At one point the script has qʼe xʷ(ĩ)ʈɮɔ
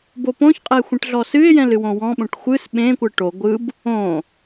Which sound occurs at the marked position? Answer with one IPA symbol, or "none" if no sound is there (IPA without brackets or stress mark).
ẽ